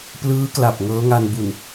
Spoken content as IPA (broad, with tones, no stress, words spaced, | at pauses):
plɯː˦˥kla˨˩p̚ ŋɤː˦˥ŋa˧nbu˨˩n